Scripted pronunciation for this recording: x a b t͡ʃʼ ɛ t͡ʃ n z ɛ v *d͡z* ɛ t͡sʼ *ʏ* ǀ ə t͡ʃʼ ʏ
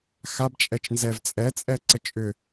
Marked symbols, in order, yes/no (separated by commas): no, no